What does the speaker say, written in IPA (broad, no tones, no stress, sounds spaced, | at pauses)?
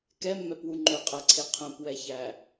k ɛ mː ɛ p w u ŋ͡ǃ ø qʼ æ ǀʰ e qʰ œ̃ p w ɛ ç æ